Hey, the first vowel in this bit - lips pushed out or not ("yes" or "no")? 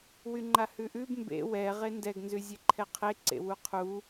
yes